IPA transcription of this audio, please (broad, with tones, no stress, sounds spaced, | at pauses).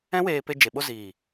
ɛ̃˦ w eː˧ p e˧ d͡ʒ e˨ ɓ o˦ z iː˨